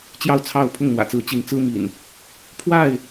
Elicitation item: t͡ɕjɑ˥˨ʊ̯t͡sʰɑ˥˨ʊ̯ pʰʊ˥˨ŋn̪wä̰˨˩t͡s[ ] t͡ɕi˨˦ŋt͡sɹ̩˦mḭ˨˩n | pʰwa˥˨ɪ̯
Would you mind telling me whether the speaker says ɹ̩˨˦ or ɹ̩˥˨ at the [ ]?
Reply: ɹ̩˨˦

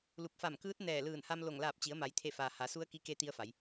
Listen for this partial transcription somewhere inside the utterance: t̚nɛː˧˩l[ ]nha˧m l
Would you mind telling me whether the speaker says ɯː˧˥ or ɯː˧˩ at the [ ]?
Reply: ɯː˧˩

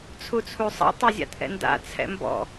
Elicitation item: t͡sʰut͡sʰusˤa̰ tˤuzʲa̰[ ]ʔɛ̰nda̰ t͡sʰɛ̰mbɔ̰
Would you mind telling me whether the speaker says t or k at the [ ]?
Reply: t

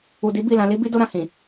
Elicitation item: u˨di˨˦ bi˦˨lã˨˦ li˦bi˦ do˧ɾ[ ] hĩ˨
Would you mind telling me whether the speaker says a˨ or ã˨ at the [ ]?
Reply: ã˨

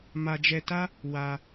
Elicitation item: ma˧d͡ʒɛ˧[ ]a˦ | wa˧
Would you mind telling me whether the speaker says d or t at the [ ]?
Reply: t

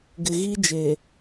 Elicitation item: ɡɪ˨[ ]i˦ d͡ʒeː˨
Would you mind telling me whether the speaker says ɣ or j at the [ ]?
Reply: ɣ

